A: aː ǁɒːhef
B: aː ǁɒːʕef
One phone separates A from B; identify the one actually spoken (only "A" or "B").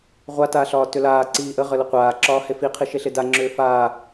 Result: A